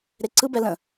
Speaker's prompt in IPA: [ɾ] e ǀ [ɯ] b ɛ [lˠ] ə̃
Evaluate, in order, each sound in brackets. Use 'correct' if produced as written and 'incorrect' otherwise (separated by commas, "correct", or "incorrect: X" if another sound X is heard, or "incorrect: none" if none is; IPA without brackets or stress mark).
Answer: correct, correct, incorrect: l